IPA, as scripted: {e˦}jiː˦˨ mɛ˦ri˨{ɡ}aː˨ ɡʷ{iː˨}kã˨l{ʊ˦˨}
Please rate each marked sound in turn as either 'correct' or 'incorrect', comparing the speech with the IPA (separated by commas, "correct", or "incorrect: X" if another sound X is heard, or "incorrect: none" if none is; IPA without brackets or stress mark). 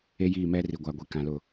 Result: correct, incorrect: ɡʷ, incorrect: i˨, correct